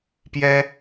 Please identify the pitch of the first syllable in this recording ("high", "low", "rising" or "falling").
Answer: high